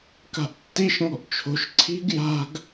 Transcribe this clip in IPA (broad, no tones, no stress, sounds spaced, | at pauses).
k a̤ ʔ tː i ʃ ŋ ɔ̤ ʔ t͡ʃʰ o̤ ʃ ǀʰ i̤ ɡ j a̤ ɡ